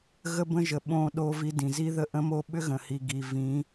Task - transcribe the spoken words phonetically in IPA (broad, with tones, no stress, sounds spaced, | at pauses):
ɣ ə˦ b ə̃˦ ʒ ə˨ ɓ õ˦ ɗ o˦ v i˦ d ĩ˨ z i˦ ð ə˦ ʔ ə̃˦ m o˦ ɓ ʏ˦ ɣ ə̃˨ h i˨ ɡ i˨ v ĩ˨˦